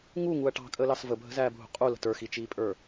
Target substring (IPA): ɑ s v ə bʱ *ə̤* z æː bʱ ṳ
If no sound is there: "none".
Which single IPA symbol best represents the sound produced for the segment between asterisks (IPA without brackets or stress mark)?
ə̤